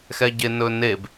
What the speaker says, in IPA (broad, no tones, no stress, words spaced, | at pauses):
xɛɟenɵneb